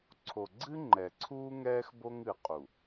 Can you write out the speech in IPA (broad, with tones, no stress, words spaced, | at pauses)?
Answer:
ǀʰo˨ɡ͡ǀɨ˦ ŋ͡ǃɛ˨ǀʰuː˦ŋɛː˦x bo˦ŋɨ˨qʼu˨